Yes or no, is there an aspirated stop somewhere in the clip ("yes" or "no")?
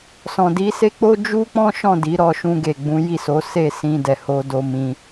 no